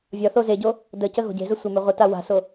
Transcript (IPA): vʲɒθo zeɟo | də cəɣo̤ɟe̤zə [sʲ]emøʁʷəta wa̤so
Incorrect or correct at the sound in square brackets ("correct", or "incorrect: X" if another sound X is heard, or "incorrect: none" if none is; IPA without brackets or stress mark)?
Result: incorrect: sʷ